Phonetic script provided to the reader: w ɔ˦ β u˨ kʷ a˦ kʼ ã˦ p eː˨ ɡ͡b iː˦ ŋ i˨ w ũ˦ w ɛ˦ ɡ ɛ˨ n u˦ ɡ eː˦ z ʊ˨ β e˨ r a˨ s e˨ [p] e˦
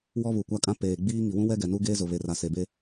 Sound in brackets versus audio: incorrect: b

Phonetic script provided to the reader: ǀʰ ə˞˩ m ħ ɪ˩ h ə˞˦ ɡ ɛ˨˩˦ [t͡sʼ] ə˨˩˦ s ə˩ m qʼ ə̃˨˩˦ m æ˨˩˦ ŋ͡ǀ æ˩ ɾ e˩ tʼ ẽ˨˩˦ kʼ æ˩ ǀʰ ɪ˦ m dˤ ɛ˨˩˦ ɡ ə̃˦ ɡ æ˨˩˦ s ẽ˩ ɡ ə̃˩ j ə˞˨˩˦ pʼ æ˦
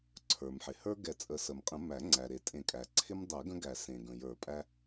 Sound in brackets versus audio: correct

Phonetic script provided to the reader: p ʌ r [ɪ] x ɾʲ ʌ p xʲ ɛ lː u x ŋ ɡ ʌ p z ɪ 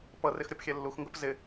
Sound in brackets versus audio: correct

